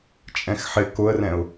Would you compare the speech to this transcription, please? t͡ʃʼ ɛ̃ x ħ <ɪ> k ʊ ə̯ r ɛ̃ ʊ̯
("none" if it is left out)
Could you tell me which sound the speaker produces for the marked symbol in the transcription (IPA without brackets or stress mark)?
ɪ